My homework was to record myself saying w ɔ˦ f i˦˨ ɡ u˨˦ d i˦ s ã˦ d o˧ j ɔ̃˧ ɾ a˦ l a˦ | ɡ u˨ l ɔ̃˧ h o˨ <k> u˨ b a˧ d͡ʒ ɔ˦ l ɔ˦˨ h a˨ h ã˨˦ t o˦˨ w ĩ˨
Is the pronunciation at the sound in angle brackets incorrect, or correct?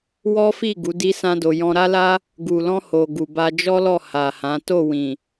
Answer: incorrect